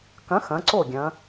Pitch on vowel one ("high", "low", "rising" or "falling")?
rising